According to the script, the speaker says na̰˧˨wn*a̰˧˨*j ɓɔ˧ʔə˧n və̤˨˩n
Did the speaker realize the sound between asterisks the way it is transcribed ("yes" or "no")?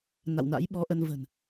no